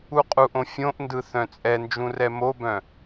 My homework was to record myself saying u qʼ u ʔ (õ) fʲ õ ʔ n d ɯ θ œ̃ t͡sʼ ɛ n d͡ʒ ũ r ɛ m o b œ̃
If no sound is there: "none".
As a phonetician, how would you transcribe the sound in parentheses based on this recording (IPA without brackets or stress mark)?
õ